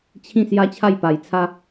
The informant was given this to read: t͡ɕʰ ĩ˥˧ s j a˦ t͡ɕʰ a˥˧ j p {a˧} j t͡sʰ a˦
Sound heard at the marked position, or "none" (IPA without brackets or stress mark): a˧